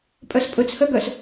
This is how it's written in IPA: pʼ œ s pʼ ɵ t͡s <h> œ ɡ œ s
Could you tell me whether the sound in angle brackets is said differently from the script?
no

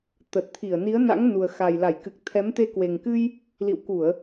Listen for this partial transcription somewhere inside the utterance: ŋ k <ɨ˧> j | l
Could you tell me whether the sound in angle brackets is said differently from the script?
no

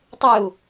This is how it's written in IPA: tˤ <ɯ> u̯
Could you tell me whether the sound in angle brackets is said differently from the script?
no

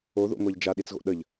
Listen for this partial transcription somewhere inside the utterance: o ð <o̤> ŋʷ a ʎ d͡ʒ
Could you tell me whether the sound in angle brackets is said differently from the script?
yes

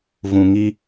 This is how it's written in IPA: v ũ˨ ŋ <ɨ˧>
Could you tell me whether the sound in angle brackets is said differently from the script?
yes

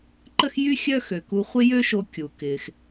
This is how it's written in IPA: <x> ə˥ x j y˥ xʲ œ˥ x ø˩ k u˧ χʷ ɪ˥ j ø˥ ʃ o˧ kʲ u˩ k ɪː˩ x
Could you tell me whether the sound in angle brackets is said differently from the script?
yes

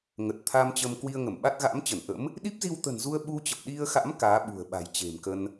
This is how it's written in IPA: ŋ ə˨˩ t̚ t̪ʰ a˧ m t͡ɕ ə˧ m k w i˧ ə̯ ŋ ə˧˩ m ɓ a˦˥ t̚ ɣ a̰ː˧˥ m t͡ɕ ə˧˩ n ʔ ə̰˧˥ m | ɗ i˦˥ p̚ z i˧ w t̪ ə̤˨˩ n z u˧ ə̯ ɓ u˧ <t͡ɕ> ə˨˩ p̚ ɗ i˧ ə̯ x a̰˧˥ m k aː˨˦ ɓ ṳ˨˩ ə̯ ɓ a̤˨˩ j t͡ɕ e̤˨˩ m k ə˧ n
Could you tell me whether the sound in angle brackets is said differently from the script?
no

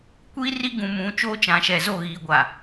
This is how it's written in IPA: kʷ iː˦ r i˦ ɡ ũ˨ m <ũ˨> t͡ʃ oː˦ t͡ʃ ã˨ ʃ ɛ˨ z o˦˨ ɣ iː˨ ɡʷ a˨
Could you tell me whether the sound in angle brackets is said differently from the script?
no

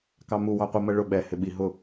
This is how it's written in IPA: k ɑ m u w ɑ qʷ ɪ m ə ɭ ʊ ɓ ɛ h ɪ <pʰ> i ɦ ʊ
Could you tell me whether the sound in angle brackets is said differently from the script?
yes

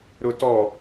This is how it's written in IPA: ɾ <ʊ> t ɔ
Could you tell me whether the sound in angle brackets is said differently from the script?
no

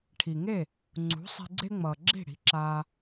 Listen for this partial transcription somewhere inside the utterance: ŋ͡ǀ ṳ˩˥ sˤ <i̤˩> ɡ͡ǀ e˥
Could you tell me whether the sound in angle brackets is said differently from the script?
yes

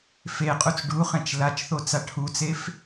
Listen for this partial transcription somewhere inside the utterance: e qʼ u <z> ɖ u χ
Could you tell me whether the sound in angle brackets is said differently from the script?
yes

